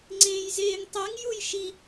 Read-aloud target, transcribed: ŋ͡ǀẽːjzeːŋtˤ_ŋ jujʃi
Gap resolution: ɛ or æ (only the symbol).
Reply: ɛ